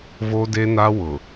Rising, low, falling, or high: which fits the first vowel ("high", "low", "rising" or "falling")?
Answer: high